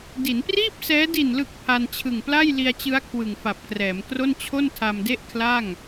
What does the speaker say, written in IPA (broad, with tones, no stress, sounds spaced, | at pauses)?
d i˩˦ n p r iː˥˩ p̚ s ɛː˦˥ d i˨˩ n l ɯ˨˩ k̚ pʰ a˧ n t͡ɕʰ ɯ˨˩ ŋ p l a˥˩ j l i˧ a̯ t͡ɕ ɯ˦˥ a̯ kʰ w ɯ˨˩ ŋ f a˨˩ p̚ k r ɛː˩˦ m k r o˥˩ n t͡ɕʰ o˥˩ n tʰ a˧ m d e˥˩ ʔ kʰ l a˥˩ ŋ